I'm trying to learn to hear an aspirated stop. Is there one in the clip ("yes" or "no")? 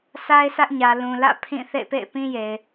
yes